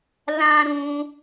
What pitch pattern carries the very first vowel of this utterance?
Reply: high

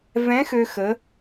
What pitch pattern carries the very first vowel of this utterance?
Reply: rising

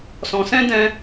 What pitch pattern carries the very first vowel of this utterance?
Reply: low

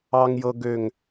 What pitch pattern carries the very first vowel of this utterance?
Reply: high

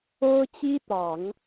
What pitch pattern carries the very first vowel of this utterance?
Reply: high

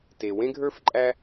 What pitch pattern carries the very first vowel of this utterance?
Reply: low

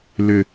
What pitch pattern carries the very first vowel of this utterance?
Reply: low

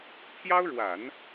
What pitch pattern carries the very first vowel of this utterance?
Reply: high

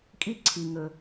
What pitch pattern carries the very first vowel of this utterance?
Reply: high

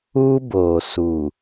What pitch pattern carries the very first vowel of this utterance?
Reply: high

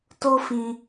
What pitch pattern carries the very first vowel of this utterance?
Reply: high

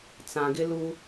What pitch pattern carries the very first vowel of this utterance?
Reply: low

